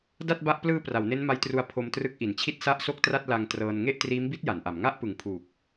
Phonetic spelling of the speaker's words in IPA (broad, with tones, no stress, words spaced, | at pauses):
da˥˩t̚ba˦˥ʔ plɯː˧ pra˩˦wne˦˥nma˦˥jtru˧a̯ pʰo˧mtrɯ˦˥k̚ʔi˩˦nt͡ɕʰi˥˩t̚ sa˥˩ʔso˥˩k̚tra˥˩t̚ la˧ŋtrɤː˧n ŋe˥˩ʔtriː˦˥mbi˦˥t̚ ja˩˦nʔa˩˦m ŋa˥˩ʔpɯ˨˩ŋpʰuː˨˩k̚